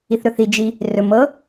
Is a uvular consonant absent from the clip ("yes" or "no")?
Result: yes